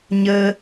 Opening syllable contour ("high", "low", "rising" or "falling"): high